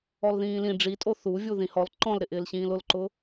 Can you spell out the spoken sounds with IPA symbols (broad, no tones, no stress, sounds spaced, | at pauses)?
ɔ l ð ĩː l ĩ ɖ͡ʐ i tʼ o θ u vʲ u ð ĩ h ɔ l ǃ ɔ̃ l ɾ ɪ ʔ ɪː l ɕ ĩː l ʊ l ǃ ʊ